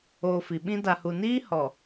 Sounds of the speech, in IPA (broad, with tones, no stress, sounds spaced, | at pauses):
oː˨ f i˨ ɓ ĩ˦ d a˨ h u˨ n iː˦ h ɔ˨